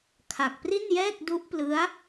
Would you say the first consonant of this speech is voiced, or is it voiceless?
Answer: voiceless